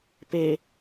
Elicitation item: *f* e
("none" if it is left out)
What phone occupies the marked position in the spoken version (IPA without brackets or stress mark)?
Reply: p